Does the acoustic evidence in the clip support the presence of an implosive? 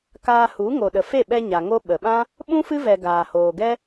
yes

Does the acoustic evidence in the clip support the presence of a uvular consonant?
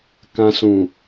no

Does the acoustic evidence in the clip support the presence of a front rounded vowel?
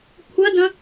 no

